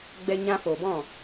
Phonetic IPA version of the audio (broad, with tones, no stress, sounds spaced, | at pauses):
ɡ͡b ɛ˧ ɲ ã˧ f o˨ b ɔ̃˦˨